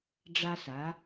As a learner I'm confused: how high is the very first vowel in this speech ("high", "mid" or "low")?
low